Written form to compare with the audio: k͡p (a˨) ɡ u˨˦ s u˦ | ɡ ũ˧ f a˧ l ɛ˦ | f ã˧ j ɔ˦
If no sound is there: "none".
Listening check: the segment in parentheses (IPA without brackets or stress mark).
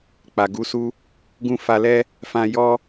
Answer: a˨